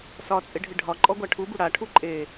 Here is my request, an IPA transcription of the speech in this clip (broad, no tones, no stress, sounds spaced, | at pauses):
s ɒ t͡sʼ ɪ ɖʱ ɪ ɖʱ ɒ ǃʼ ɔ ɡʷ a ʈʰ u b u ɽ a ʈʰ u ǃʼ e